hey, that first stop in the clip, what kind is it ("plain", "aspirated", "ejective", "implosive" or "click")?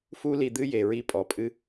plain